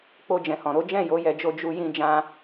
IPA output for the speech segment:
k͡po˧d͡ʒɛ̃˨hɔ̃˨ɾo˨˦ d͡ʒɛ̃˦˨jo˨˦jɛ˧d͡ʒo˧ d͡ʒu˧jĩ˧ d͡ʒã˧

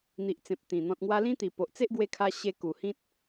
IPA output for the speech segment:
n̪i˨ʔt͡sẽ˨p̚ t̪ĩ˨˩ n̪ɔ̃˨t̚ŋwa˧lĩ˦t̪i˨˩ po˨ʔt͡se˦ʔɡwe˧kʰa˧ ɕe˧ku˨˩ hĩ˦t̚

